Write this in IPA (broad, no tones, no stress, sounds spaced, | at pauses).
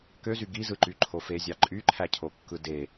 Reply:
k ø z y ɡ i z ɯ ǃ y ǃʰ o f e zʲ ɑ ǃʼ y ǃʰ æ cʰ o kː ɯ d e